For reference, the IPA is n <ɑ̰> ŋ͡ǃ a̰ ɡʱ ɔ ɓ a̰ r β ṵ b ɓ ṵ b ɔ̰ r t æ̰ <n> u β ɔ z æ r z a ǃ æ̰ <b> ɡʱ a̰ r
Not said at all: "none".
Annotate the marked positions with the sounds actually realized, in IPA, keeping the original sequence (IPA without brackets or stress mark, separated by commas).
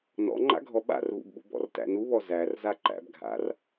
ɔ̰, n, b